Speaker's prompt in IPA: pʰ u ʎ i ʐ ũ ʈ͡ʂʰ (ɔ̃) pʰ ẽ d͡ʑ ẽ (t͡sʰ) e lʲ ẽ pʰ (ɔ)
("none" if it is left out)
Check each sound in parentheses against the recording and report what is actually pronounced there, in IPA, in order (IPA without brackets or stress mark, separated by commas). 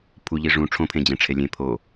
õ, ʈ͡ʂʰ, o